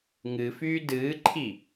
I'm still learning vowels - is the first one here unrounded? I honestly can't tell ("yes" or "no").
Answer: yes